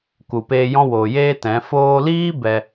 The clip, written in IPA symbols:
k u˨ p eː˧ j ɔ̃˧ w oː˨ j eː˦ t ɛ̃˨˦ f oː˧ l iː˦ b ɛ˧

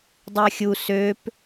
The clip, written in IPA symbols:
dˤ ʏ ɐ̯ xʲ u s ø p

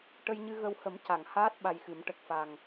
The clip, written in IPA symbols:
ʈ ə˧ j ɲ ɨ˧ ɣ ə˧ w h ə˨˩˦ m c a˨˩˨ ŋ h aː˦˥ t̚ ɓ a˧ j x ɨ˨˩˦ m ʈ ə˨˩ k̚ f a˨˩ ŋ

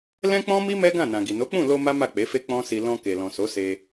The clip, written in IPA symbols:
l ɛ̃˦ k͡p ɔ̃˦ m i˦ m ɛ˦ ɡ ã˦˨ n ã˨ ɡ i˨ n o˨˦ k͡p ũ˦˨ l o˧ m a˦ m a˦˨ k͡p e˨˦ f e˦ k͡p ɔ̃˦ s i˧ l ɔ̃˧ k e˨ l ɔ̃˨ s o˨˦ s e˧

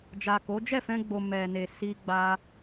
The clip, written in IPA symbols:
d͡ʒ a˨ k o˨˦ d͡ʒ ɛ˦˨ f ɛ̃˧ ɡ͡b o˨ m ɛ˨ n e˨ s i˧ ɡ͡b a˧

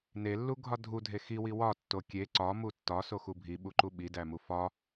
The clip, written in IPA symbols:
n e lː u ɡʱ ɒ dʱ u dʱ e x i w i w ɒ tː o kʲ e ǀ ɒ m u tː ɒ s o x u bʱ i ɓ u ǃ u ɓ i d æ m u f ɒ

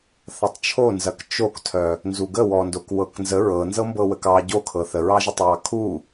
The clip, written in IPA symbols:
θ ɐ tˤ t͡ʃʰ o n z ɐ k t͡ʃ o k tʰ œ | n z u ɡ ə w ɔ n d o k w ɤ k n z ə ɹ ɤ n z ɤ m b ɤ w ə k ɑ ɟ o kʰ ɤ θ ə ɹ ɑ ʒ ə tˤ w ɑ kʰ u

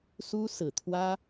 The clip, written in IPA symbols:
s u˥ s ɹ̩˨˩ t̪ʰ w ä˥

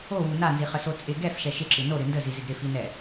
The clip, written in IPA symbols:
o w u n a n z i χ ə s o t͡sʼ ɪ ɡ ɛ f ʃ ɛ ʃ ɪ ǁ ɨ n o ɾ ɨ n d ə z i z ɪ ɡ ɾ ɪ f i n ɛ

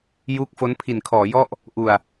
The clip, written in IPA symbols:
j uː˦˥ k̚ f o˦˥ n pʰ i˨˩ n kʰ ɔː˩˦ j ɔ˥˩ ʔ | ʔ u˨˩ a̯

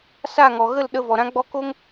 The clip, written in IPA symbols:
s a˦˨ ŋ ɔ˨ ɣ ə˦˨ l ɗ ə˧ v ɔ˨ ɾ ã˦ ɡ͡b ɔ˧ k o˦ ŋ

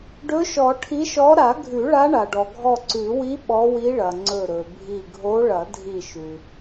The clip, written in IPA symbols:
ɖ ɵ˧˥ ʃ ɔ˨˩˦ ʈʰ i˧˥ ʃ ɔ˧˥ ɾ a˨˩˦ ɡʱ ʉ˨˩˦ ɭ a˧˥ ɳ a˩ ɖ ɔ˩ ɡʱ ɔ˧˩ ǀ ʉ˨˩˦ w i˧˥ ɓ ɔ˧˥ w i˧˥ ɭ ɐ˩ ŋ͡ǀ ɵ˧˩ ɾ ɵ˩ bʱ i˧˩ ɡʱ o˧˥ ɭ ɐ˨˩˦ dʱ i˧˩ ʃ ʉ˩

